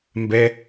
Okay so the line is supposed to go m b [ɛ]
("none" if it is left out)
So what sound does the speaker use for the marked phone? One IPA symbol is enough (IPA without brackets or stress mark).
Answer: ɛ